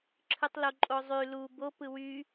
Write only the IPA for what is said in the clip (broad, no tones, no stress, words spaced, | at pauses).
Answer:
ǁʰɯtˤloǃʼozˤy lu bo pɯwy